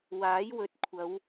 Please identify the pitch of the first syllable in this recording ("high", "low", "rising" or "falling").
rising